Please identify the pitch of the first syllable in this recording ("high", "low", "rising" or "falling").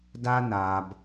high